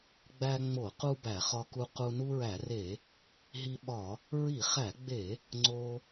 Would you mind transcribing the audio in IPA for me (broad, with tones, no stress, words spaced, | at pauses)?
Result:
ɡ͡bæ˧ŋ͡mo˧˩˧qu˧ bæ˧˩˧χɒ˧ku˧ qu˧ nu˧ɹæ˧˩˧re˧˩˧ | ɦi˧ɓɒ˧˩˧ | ɹi˧˩˧χæ˧˩˧ɡ͡be˧˩˧ | ŋ͡ǀo˧